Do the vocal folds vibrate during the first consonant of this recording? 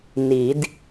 yes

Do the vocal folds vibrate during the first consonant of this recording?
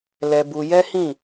yes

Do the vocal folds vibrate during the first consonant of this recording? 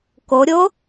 no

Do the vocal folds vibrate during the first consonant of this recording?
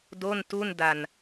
yes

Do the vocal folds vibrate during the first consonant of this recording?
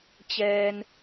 no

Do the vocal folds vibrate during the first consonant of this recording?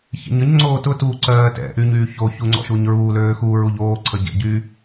no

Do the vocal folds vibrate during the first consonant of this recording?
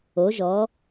yes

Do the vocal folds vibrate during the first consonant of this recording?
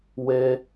yes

